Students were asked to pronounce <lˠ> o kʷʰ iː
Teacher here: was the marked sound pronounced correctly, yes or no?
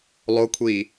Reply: yes